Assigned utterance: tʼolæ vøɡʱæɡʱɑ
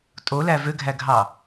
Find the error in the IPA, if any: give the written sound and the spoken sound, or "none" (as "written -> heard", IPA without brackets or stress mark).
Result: none